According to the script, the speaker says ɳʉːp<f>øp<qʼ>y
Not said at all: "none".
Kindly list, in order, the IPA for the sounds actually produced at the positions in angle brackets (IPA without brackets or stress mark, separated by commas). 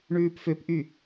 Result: f, ʔ